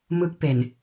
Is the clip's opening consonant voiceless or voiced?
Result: voiced